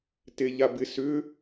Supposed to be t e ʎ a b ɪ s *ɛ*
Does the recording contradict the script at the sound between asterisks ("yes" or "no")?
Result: yes